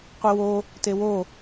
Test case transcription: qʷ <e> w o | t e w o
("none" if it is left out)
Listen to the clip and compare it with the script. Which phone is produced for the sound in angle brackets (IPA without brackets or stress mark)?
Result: i